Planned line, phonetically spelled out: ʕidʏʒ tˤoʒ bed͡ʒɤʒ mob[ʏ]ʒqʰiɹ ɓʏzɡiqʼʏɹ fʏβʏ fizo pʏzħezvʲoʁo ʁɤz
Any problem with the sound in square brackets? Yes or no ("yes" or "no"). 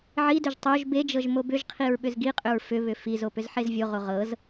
no